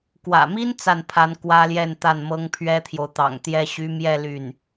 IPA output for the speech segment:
k w ä̰˨˩ m i˥ n t͡s a˥˩ n pʰ a˧˥ n k w ä˥ l j ɛ˥˧ n t̪ a˥˩ n m ɤ˥ ŋ pʰ ɥ ɛ˥ t̪ʰ j o˨ ʊ̯ t̪ ɑ̰˨˩ ŋ t̪ j ɛ˥ ɕ y˧˥ m j ɛ˥˧ l y˥˩ n

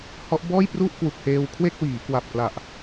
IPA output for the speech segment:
h ɔ˦˥ ʔ b ɔː˥˩ j p r u˥˩ ʔ k w u˨˩ k̚ h eː˧ w kʰ w e˥˩ k̚ w iː˩˦ k w a˨˩ p̚ k l a˨˩ ʔ

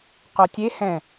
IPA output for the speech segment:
q o tʲ e h ɛ̃

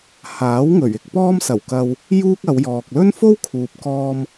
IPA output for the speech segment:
h aː˨˥ w ŋ ɵ˨˩ ɥ ɪ˧ k̚ p ɔː˥ m s ɐ˨˩ w k ɐ˧ w | j uː˥ k̚ ɐ˨˧ w j ɔː˨ k̚ l ɵ˥ n f o˥ w kʰ uː˨ p̚ k ɔː˧ m

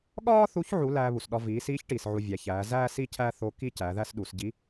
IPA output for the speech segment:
ɠ ɒː˥ θ u˧˥ ç ʕ u˧˥ l æː˧ β u˩ s ɗ ɒ˧ v iː˩˧ s iː˧˥ ç ʈ iː˩ s ʕ u˧ vʲ æ˩˧ ç æː˩˧ z æː˥ s i˥ cʰ æ˥ θ o˧˥ k i˥ c æ˩˧ ð æ˥ s ɗ u˩˧ s ɟ i˧˥

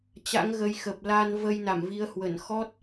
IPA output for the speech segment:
t͡ɕ a̰˧˥ ŋ ɣ ə˧ j x ə˨˩ p̚ l a˧ n v ə˧ j n a˧˩ m v i˨˦ ə̯ h w ə˧˩ n x ɔ˦˥ t̚

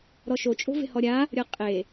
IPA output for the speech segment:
ɾ ɔ ʃ o t͡ʃʼ o̤ v e̤ h ɔ ɾʲ a | ɾʲ ɤ qʼ e

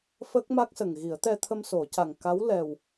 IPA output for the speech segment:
f ə˦˥ k̚ m a˦˥ k̚ s ə˨˩ ŋ ɣ i˨˩˦ ə̯ t̪ ɛ˧ t̪ʰ ə˧ m s o˨˩˦ c a˨˩ ŋ k a˧˥ w l ɛ˨˩ w

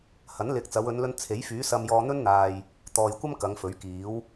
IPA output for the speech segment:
h ɐ˨˥ n l ɪ˨˥ k̚ t͡s ɐ˨˧ w ɵ˨˧ n l ɵ˧ n t͡sʰ e˨˥ j f yː˨˥ s ɐ˧ m j ɔː˧ n̪ ɵ˥ n n̪ aː˨ j | t̪ ɔː˨ j kʷ ɐ˥ m k ɐ˨˧ ŋ f ɵ˨˥ ɥ k iː˨˥ w

